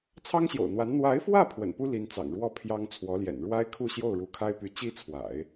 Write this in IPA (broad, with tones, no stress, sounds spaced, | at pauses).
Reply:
t͡sʰ ɑ˥ ŋ ɕ j o̰˨˩ ʊ̯ n̪ w a˧˥ n n̪ w a˧˥ ɪ̯ f w ä˥˩ pʰ w ə̰˨˩ n p u˥ l i˧˥ n t͡s ɑ̰˨˩ ŋ ɻ w ɔ˥˩ pʰ j ɑ˥ ŋ t͡sʰ w ɔ˧˥ l j ɛ̰˨˩ n ɻ w a˥ ɪ̯ kʰ u˥˧ ɕ j o˥˩ ʊ̯ ɻ u˧˥ kʰ a˥ ɪ̯ p y˧˥ t͡ɕ i˥ t͡sʰ w a̰˨˩˦ ɪ̯